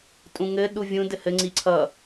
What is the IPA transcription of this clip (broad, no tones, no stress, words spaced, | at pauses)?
tʼũŋɘ ɗuvʲũ dɘhɘ ŋ͡ǀiǀʰʌ